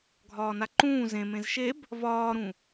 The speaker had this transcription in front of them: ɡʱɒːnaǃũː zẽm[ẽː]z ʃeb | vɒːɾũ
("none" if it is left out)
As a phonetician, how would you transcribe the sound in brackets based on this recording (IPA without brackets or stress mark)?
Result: ẽ